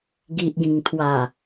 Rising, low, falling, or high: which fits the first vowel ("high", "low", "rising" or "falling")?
low